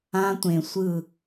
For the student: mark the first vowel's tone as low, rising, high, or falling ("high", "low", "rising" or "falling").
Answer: high